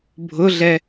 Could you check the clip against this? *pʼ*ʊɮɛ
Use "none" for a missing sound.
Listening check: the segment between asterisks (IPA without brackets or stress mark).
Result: bʱ